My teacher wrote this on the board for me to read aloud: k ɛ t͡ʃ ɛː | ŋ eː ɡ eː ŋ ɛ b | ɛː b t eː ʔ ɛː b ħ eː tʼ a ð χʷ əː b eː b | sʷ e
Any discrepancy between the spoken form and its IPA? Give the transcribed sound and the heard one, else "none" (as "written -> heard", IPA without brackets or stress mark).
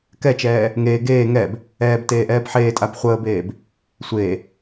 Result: ð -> b